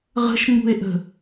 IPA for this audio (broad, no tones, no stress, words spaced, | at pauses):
ʁə̤ʃŋ͡mṳe̯ʔə̤